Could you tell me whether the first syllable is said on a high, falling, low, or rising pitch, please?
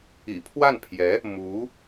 low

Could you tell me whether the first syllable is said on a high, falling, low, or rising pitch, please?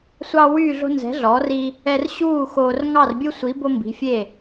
high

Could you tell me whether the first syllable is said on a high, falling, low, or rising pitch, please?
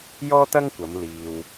high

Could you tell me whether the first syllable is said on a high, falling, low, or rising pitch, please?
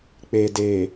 low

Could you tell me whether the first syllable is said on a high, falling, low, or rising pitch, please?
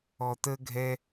low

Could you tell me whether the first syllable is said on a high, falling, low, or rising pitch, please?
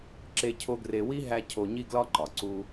high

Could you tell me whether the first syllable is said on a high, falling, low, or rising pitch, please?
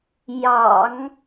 low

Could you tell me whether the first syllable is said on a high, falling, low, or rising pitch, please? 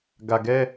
low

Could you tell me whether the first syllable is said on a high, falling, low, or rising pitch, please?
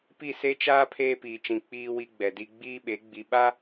falling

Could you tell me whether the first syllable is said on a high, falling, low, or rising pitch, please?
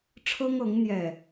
high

